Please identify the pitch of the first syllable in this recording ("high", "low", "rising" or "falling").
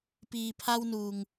low